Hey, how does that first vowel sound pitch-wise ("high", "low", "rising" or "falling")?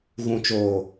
low